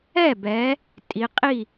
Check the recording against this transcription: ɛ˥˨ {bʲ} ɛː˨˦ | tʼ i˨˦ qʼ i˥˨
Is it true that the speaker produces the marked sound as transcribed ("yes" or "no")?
no